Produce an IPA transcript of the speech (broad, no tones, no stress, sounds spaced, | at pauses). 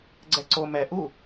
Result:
ɡ͡ǀ ɛ ǀ o m ɛ ʔ u